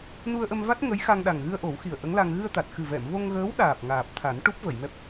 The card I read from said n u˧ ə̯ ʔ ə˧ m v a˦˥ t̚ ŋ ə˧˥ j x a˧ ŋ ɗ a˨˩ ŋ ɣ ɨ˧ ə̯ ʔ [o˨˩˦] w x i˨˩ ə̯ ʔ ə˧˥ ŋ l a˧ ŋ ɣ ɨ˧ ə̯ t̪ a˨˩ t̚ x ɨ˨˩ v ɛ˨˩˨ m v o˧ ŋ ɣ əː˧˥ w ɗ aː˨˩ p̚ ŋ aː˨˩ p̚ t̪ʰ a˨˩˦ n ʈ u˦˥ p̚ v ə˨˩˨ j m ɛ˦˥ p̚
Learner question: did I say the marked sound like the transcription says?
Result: yes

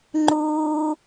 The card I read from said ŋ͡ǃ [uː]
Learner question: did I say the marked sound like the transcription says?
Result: yes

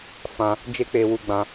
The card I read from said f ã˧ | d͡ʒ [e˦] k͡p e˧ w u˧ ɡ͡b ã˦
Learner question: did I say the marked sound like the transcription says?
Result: yes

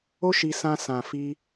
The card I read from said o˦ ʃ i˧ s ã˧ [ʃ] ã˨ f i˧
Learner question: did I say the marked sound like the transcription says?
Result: no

